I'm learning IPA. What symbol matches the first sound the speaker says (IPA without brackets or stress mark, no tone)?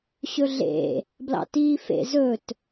ɕ